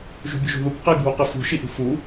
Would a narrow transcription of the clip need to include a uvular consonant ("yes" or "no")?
yes